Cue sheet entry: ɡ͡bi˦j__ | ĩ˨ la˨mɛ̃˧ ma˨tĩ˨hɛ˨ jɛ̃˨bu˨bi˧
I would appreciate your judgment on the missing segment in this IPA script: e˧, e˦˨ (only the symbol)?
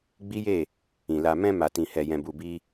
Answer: e˦˨